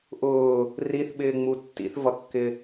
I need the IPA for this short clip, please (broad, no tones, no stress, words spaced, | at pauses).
ʔʊː | riθɓɪːŋ͡mu tːḭθvʌkːɪ